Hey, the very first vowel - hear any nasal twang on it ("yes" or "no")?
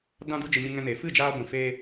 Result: yes